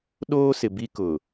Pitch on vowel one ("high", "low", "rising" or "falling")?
high